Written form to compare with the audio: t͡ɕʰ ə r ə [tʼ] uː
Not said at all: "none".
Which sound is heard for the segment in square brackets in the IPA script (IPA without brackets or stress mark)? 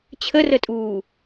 tʼ